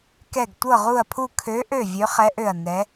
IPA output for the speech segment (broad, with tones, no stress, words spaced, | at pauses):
kɛ˧˩ɡ tʷɤ˧˩ʁu˧˩ɐ̯pʰu˧˩ kʰø˨˦ʔø˧˩ vʲø˨˦χɛ˨˦ʔø˧˩ɐ̯ nɛ˨˦